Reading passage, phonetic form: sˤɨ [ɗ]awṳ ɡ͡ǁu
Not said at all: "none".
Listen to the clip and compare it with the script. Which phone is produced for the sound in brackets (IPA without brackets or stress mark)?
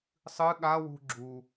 ɠ